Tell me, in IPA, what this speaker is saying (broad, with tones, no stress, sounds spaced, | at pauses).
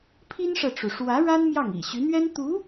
pʰ i˥ n ʂ ɤ˨ ʈ͡ʂ u˩ ʂ w ä˧˥ ɻ a˥ n m j ɑ˥˩ ŋ ḭ˨˩ ɕ y˧˥ n̪ ɥ ɛ˥ n t̪ u˧˥